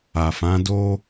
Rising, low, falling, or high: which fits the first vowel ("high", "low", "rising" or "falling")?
low